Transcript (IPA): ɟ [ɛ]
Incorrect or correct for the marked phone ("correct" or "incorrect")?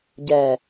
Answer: correct